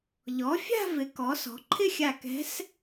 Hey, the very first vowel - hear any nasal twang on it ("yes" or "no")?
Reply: no